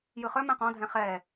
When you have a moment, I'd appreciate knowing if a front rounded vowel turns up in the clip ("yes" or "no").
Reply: yes